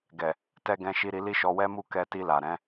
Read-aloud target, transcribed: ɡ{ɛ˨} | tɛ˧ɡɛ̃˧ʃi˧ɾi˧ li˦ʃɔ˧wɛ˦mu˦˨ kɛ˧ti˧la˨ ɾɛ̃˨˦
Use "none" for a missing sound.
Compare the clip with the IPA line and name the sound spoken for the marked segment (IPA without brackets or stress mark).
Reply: ɛ˨